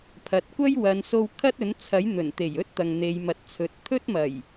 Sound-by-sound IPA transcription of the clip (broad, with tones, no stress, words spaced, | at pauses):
pʰɐ˨t̚kʷɐ˥jwɐ˨˧n so˧w kʰɐ˥t̚ɵ˨˥nt͡sʰɐ˨˥j n̪ɵ˨˩nt̪e˨˩jɵ˥t̚ t̪ɐ˨ŋn̪e˨˧jmɐ˨˥t̚t͡sʰɵ˨t̚ t̪ʰɵ˥t̚mɐ˨˩j